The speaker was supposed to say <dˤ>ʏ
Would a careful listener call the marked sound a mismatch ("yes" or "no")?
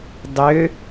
no